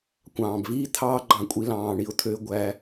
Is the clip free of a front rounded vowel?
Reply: no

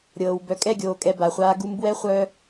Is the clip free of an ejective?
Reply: no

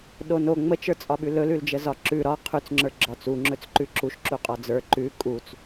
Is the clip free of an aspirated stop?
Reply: no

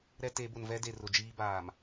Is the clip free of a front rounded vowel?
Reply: yes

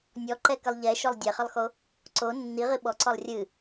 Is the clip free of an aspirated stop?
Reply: yes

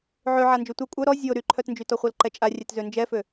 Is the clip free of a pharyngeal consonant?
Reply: no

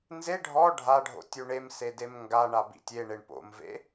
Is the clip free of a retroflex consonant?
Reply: no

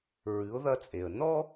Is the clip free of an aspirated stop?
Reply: yes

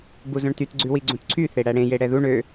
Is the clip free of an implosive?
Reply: yes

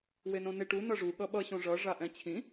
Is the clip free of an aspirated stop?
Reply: no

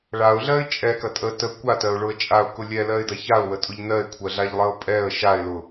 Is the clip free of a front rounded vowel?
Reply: yes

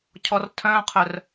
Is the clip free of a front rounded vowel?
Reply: no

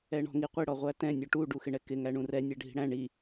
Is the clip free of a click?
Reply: yes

